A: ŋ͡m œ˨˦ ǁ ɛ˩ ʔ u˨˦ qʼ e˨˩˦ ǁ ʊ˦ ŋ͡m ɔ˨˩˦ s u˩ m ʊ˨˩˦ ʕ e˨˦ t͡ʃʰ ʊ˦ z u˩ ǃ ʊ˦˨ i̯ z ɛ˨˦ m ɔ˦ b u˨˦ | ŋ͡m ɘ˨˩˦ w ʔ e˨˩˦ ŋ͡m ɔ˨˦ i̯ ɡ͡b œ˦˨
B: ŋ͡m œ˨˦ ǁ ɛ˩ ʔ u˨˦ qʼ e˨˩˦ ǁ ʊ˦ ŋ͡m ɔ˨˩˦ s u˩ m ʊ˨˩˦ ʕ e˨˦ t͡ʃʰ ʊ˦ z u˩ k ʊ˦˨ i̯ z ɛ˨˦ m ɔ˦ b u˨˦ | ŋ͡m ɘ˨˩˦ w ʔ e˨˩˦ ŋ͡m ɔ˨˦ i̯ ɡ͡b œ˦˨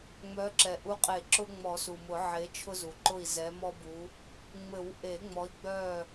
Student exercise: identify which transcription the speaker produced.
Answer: A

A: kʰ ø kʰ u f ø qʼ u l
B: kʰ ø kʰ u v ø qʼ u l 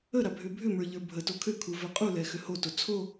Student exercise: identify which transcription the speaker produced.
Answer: B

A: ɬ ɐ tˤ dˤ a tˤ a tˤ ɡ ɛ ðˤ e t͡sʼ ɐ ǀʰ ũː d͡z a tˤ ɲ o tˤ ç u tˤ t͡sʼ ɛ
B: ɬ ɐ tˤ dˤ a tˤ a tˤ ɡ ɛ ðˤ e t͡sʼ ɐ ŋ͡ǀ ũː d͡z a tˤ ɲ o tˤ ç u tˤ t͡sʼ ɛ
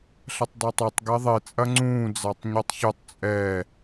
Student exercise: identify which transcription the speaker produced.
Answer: B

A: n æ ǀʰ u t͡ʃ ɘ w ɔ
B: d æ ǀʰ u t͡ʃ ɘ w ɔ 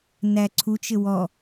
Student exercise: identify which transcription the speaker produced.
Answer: A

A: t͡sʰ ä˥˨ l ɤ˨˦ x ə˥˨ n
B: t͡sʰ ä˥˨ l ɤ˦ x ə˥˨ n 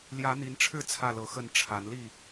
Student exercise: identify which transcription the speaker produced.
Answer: A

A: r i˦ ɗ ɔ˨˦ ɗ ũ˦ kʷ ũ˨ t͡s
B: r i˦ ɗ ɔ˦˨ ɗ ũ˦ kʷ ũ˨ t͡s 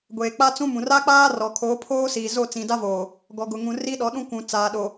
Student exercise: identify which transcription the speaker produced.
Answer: A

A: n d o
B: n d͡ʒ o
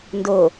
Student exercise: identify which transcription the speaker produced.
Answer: A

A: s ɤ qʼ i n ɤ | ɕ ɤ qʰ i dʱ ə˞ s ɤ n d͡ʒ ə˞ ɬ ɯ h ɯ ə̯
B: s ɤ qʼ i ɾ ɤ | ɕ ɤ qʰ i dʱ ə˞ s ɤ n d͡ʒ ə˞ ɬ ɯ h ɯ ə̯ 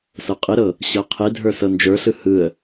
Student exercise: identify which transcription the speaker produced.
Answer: B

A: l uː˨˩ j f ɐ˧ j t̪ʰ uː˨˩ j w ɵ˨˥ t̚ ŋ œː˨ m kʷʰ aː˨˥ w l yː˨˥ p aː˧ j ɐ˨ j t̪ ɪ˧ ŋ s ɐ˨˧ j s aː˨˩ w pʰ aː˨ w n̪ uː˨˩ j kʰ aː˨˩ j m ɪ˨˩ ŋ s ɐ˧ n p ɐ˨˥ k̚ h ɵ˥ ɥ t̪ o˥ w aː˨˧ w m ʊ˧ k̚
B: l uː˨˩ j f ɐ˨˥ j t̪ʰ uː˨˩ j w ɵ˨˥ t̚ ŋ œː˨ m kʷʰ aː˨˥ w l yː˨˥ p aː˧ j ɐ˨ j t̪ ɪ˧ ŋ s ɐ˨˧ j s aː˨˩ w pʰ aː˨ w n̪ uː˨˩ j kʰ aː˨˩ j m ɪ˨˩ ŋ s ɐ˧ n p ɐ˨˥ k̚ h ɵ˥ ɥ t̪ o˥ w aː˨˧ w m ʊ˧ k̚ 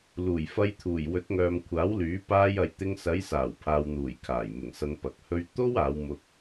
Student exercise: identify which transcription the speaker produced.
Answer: A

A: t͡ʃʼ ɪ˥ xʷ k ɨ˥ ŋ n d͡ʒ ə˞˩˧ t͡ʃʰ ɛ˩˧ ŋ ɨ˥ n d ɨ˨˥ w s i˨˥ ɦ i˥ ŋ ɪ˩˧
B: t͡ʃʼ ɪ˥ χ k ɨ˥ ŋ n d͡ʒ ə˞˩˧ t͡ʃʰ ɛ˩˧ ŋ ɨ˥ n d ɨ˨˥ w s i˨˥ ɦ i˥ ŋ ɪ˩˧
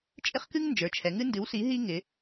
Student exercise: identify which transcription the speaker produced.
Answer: B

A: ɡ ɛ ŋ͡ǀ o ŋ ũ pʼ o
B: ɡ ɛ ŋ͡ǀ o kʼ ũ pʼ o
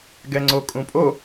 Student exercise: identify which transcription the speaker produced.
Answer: B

